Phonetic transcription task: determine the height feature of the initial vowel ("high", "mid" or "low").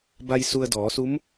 low